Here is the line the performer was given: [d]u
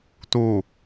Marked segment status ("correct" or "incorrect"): incorrect